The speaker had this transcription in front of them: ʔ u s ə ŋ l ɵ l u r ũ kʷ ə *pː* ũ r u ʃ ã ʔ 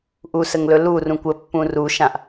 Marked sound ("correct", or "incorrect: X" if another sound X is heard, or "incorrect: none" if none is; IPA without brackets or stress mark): correct